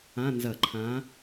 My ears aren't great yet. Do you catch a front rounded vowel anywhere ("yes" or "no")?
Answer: no